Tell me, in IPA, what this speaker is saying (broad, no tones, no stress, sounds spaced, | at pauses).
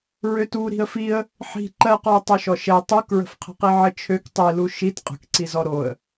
ɹ ø t u ɾ i̤ ə̯ f i ə̯ | ħ i̤ ǃ ɜ q ɔ ʊ̯ tˤ ø ʃ ɔ ʃ ɛ tˤ u k ɹ ə̤ f qʰ ə̤ q i ʕ ə t͡ʃʰ ø k tˤ i l u ʃ i t qʼ ə̤ k ǀ i z ɔ ɾ o ə̯